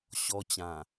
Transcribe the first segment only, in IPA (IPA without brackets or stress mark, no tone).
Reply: ɕ